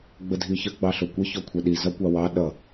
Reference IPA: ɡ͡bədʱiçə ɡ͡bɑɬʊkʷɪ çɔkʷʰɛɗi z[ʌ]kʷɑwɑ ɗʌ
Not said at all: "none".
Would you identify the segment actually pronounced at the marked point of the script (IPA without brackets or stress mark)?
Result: ʌ